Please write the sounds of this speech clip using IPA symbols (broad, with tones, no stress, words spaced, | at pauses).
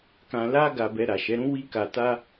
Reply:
kã˧ la˦ ɡa˧bɛ˧ ɾa˨ʃɛ˨˦ɾũ˦ wi˦ka˧ta˦